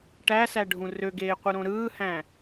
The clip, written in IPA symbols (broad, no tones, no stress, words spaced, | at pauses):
ʈæsæɖʱũ røɡeːqʷɯɾõ ɾɯːhæ̃